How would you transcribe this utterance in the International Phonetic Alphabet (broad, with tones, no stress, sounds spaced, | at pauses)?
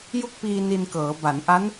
j u˥˩ k̚ p iː˧ n i˧ n k ɤː˩˦ b a˩˦ n ʔ a˦˥ n